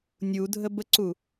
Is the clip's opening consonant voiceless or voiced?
voiced